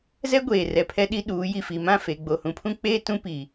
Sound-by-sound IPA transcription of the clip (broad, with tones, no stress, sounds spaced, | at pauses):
z ɛ˦ ɡʷ eː˨ r ɛ˨ pʰ ɛ˦ ɗ i˦ ɗ uː˨˦ j i˨ f i˨ m ã˦˨ f e˨ ɡ͡b o˨ h ũ˨ pʰ ũ˦ k͡p eː˦ t ũ˦ p i˨